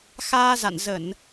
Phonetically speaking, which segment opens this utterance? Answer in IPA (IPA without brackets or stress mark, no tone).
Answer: x